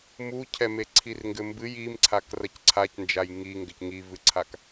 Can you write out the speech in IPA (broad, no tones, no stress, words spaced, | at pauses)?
mucʰɛme ǀʰirŋɡɘmbɨj imǀʰak rɐcǀʰacnd͡ʒaj ŋi ŋɡɘcŋivɨǀʰak